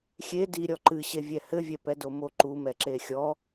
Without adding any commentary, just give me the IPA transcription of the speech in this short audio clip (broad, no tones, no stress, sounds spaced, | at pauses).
xʲ e d i ɾʲ ɔ ǃ ɨ ɕ e vʲ ɛ h ɘ vʲ ɛ p ɛ d o m o ǃ u m ɛ ǁ e xʲ ɔ